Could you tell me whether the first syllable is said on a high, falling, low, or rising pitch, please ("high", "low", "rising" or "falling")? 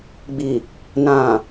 low